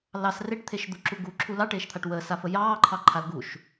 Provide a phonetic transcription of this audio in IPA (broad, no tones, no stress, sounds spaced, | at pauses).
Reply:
l ɑ s r e ʈ t̪ʰ e ʃ d̪ u ǁ u ɡ u ǁʰ u l ɑ ʈ eː ʃ t̪ʰ a ʈ w əː s a f ə j ɑː ǃʰ ɑ ǃʰ a l ɡ u ʃ